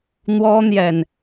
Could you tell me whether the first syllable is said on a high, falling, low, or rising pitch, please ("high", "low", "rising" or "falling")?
high